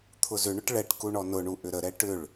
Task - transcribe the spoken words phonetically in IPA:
t̪ʰʊzʏɳʊʈ ɭɛʈku ɳɔnʊɳu ʔʏɾəɾɛ ʈʏɭ

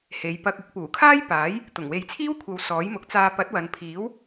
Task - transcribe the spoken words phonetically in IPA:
he˨jpɐ˧k̚ ɪ˨˥k̚puː˨˩kʰaː˥j paː˨˥j | t̪ʊ˨˩ŋwe˨˧jt͡sʰiː˥wkʷʰɐ˨˧w sɔː˨˥jmʊ˨˥k̚t͡saː˧ pɐ˨˥t̚wɐ˨npʰiː˨˥w

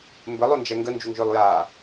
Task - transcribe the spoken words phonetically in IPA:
mbɘlˠond͡ʒɛ ŋɡənd͡ʒuŋʒʏːlˠjaː

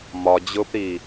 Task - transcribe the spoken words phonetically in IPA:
mɒd͡ʑʊːpɾiː

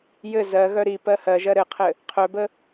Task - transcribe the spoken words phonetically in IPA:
jɘ zɜɣœ ɾi pɜhɜʒɜ ɾɘqʰɘ | qʰœbə

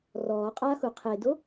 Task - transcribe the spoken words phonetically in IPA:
rɔː qʼaxu qʰedo

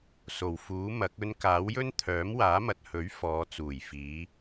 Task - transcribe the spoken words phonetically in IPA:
so˨˩wfuː˨˥mɐ˨˥k̚ ɵ˧n kaː˨˥wjɵ˥n t̪ʰœː˨˥mwaː˨˥mɐ˨t̚hɵ˨˥ɥ fɔː˨˧ t͡suː˨˩jfiː˨˧

